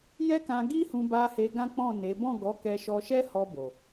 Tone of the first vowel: high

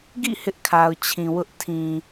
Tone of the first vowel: falling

